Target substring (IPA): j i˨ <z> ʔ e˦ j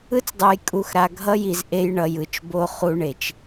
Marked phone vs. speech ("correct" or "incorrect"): correct